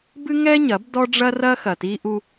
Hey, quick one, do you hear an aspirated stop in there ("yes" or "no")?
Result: no